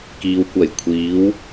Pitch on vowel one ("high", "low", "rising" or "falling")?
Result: low